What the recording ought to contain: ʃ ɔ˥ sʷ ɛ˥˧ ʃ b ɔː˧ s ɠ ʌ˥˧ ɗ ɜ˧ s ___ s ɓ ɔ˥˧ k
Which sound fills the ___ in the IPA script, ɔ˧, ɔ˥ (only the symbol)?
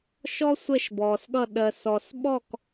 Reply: ɔ˧